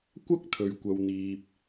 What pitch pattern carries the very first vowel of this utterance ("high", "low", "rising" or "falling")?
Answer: high